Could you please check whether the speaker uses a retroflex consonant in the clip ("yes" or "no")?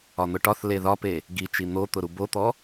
yes